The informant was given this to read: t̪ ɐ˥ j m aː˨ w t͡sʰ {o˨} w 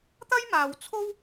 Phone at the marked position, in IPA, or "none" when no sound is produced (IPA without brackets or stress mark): o˥